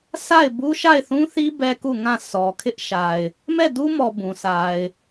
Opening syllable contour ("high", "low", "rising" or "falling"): falling